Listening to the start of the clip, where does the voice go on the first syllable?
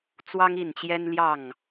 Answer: high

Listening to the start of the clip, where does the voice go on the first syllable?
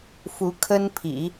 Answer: rising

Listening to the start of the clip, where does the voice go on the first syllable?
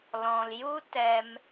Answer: low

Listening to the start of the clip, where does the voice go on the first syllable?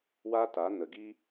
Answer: high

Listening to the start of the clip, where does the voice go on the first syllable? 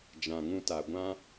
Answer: low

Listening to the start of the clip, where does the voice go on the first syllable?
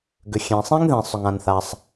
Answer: low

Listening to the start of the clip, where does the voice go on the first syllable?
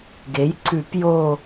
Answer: rising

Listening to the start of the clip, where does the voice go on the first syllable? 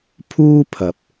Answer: high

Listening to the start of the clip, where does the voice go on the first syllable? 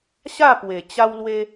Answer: falling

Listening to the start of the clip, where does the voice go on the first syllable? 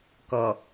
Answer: low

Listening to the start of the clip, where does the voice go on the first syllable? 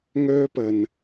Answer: high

